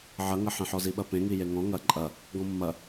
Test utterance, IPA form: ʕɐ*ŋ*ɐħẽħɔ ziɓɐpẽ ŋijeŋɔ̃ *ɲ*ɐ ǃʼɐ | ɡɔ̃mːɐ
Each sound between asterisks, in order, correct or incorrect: correct, incorrect: ŋ

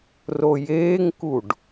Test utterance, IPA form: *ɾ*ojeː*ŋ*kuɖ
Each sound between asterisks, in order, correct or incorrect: incorrect: r, correct

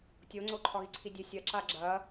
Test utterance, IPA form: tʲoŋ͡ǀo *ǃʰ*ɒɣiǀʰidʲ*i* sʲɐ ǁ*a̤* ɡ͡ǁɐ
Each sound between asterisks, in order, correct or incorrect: correct, incorrect: e, incorrect: a

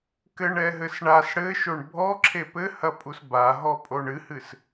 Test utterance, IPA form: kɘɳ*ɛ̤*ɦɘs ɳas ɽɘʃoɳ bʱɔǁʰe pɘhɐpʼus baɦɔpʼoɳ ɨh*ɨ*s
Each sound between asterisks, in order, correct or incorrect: incorrect: ɛ, correct

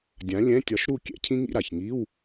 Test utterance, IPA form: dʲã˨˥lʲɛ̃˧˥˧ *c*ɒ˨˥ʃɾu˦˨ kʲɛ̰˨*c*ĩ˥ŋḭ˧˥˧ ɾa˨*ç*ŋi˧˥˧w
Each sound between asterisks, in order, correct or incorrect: incorrect: tʲ, incorrect: cʰ, correct

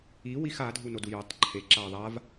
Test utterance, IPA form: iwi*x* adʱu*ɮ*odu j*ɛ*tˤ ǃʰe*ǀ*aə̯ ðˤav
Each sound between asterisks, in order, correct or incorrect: correct, incorrect: n, correct, incorrect: ǁ

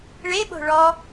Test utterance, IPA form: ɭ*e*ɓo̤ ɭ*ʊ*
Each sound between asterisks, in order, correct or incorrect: correct, incorrect: ɔ

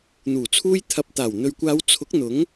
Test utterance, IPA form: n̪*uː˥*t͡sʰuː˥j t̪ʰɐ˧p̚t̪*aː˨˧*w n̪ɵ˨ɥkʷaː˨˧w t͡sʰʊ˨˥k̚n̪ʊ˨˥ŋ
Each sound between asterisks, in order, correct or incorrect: incorrect: uː˨˩, incorrect: aː˨˩

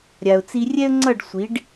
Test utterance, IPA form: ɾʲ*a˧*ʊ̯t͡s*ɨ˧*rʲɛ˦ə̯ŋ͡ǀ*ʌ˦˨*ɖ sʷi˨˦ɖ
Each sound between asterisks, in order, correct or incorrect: incorrect: a˨, incorrect: i˧, correct

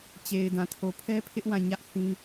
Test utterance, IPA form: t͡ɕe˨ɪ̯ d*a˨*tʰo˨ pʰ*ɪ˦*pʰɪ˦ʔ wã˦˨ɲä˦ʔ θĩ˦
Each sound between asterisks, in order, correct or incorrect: incorrect: ã˨, incorrect: ɛ˦

